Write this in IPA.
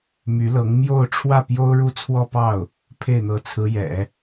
m y˧˥ l ɤ˧˥ ŋ m j o˥˧ ʊ̯ ʈ͡ʂʰ w ä˥˩ p j o˥ ʊ̯ ɻ u˥ t͡sʰ w ɔ˥˧ p ɑ˥˩ ʊ̯ | pʰ e˥˩ ɪ̯ n̪ ɤ˧˥ t͡sʰ ɹ̩˧˥ j ɛ̰˨˩˦

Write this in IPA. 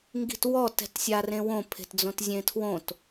ŋ ɡ i̤ t w ɔ t ɛ̤ t sʲ a r ẽ w õ pʰ e̤ t d͡z õ t zʲ ẽ tʰ w õ t

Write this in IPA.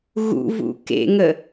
ɣ ṵ v ṵ k ḛ ŋ ə

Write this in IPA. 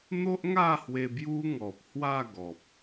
n̪ o˦ ʔ ŋ a˥˧ h w e˧ b j u˦ ŋ ɔ˨ p̚ h w a˥˧ ɡ ɔ˨ p̚

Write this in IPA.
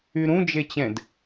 y ɾ ũ d͡ʒ e t͡ɕ ɛ̃ d

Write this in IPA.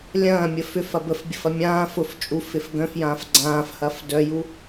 lʲ ɐ̃ː mʲ ə f ʏ f ɐ b ə f bʲ ə f ɐ mʲ ãː f ʊ f t͡ʃʼ u f ɪ f ɡ œ̃ f j ãː f ɡ͡ǀ ãː f h ɐ f d œ j u

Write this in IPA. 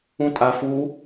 ũ tʼ a f u

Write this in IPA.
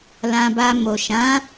l ã˧ b a˧ m o˨ ʃ ã˨˦

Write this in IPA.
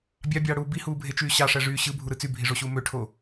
bʲ ɑ bʲ ɑː ɽ uː b i h uː bʱ e t͡ʃ yː ɕ ɑ ʂ æ ʐ yː ɕ ɯ bʱ u ɾ ɯ t͡s y bʱ i ʐ o ɕ uː m ø ʈʰ o

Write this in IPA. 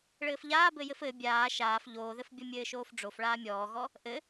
ɭ ɘː f ʎ aː b ɘ j ɘ f ɘ bʲ aː ʃ aː f ʎ oː ð ɘ f bʲ ɔ mʲ ɘː ʃ oː f ɖ͡ʐ o f ɭ aː mʲ ɔː ɣ ɔ | ʔ ɘ

